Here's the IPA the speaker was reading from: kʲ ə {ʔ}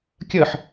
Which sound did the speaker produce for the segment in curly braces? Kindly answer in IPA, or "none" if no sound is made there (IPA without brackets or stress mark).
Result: ħ